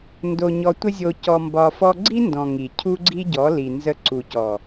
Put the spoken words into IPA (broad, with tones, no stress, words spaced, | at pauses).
ndo˧ɲɔ˧tʷə˦zʲo˧ cɔ˧mbɒ˧fɔ˦ ɡ͡ǀi˦ndɔ̃˨ ŋi˨cʰu˦ɡ͡ǀi˦ɟɔ˨˦ li˨nzə˧ ǀu˨cɔ˨